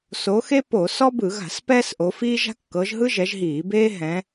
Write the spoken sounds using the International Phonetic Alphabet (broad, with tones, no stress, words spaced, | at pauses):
so˨˦xe˥ po˧˩˧sɔ˥ bɯ˧˩˧ɣa̤˧˩˧s pɛː˥sʔo˨˦fiː˥ʒa̤˥ kːɤ˨˦ʒɦɯ˥ʒɛ˨˦ʒɦiː˧˩˧ beː˥ɦɛ̃˨˦